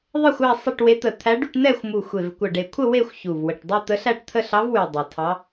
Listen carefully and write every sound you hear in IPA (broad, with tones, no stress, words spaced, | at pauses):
ðˤə˥˧xʷæ˥˧ sˤə˥˧ʈwe˧˥ t̪ə˨˩t̪ʰæ˧˥ɖy˥˧ʈn̪ɛ˥˧xʷ mu˨˩ xʷe˨˩vkʷə˨˩ɖe˨˩kʷʰə˥˧ we˥˧xʷçu˨˩vwə˨˩ʈ dˤy˥˧ t̪ə˧˥ɬæ˥˧ʈ t̪ʰə˥˧ɬɑ˧˥vwy˨˩ dˤɑ˨˩tʰɑ˧˥